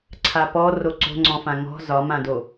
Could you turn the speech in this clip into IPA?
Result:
ǀʰ a p ɔ r o ǀ o̤ ŋ͡ǀ ɔ̃ f ã ŋ ɔ̤ z ɒ m ã d o

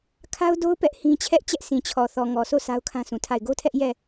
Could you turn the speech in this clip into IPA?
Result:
kʰ a˦ ʊ̯ d o˦ ʊ̯ p ɛ˦ ʔ h ĩ˦ t͡ɕʰ ɛ˦ ʔ t͡ɕ ɛ˦ ʔ sʰ ĩ˨ t͡ɕʰ ɔ˨ θ ɔ˨ ŋ ɔ˨ s o˦˨ sʰ a˦ ʊ̯ kʰ ã˦ sʰ ũ˨ tʰ a˦˨ ɪ̯ ɡ o˦ tʰ ɛ˦ ʔ j ɛ˦˨

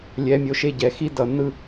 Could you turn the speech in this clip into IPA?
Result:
lʲ ɛ˨ mʲ o˨ ʃ e˦˨ ɟ ɛ˨ x i˦ d ʌ˨ n ɯ˦

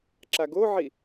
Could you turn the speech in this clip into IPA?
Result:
ǁ a ɡ o ʕ i

